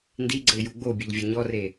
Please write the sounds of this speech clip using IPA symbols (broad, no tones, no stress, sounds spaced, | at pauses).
n d i ɡ͡ǀ ə ɪ̯ j u ɡ͡b o bʲ e ʎ vʲ ʌ ɲ ɔ r e